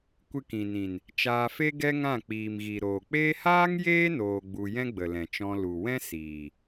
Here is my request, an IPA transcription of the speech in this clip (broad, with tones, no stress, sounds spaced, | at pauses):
kʷ ɨ˧ k ĩ˨ n ĩ˨ n | t͡ʃ aː˧ f e˦ ɡ ɛ˦ ŋ ã˦˨ k͡p iː˨ m ɣ i˨ ɾ oː˨ k͡p eː˦ h aː˦ ŋ j eː˦ n oː˧ ɡ͡b u˧ j ɛ̃˦ ɡ͡b ə˨ l ɛ̃˨ t͡ʃ ɔ̃˧ l u˨ w ɛ̃˦ s iː˨